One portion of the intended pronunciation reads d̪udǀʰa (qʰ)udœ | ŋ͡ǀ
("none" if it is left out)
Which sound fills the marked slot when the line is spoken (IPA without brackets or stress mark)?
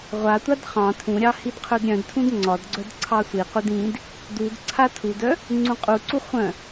tʰ